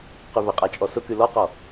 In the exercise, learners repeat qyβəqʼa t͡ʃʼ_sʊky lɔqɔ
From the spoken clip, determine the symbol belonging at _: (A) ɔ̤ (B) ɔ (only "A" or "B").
B